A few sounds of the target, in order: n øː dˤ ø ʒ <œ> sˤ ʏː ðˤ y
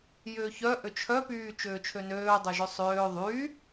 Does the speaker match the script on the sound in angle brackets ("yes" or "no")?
yes